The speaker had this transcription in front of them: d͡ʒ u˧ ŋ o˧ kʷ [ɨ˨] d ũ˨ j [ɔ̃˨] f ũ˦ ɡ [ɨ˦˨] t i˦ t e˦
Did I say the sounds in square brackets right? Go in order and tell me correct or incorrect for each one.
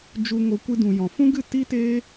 incorrect: ɨ˧, correct, correct

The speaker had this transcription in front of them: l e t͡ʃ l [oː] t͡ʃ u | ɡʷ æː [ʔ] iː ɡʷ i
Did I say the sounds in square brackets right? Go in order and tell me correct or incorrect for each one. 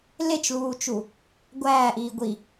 incorrect: uː, correct

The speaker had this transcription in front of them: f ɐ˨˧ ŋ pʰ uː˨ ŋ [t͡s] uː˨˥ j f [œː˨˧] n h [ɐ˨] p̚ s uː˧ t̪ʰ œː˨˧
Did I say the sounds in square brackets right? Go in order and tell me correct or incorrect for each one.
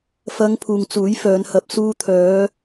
correct, correct, correct

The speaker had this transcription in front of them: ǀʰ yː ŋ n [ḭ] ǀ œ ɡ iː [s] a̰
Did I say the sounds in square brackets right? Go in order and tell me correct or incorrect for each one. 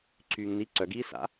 incorrect: i, correct

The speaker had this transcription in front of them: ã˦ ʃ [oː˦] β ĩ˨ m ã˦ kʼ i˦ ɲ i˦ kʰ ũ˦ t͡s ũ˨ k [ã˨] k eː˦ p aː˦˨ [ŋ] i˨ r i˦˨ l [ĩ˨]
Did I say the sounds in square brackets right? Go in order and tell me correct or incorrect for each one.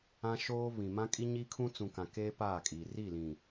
correct, correct, incorrect: kʼ, correct

